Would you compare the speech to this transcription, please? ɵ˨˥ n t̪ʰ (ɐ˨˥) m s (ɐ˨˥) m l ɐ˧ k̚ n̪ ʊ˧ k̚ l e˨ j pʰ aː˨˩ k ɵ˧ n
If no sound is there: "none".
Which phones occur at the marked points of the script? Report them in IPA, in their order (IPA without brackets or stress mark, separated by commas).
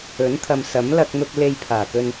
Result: ɐ˨, ɐ˨˥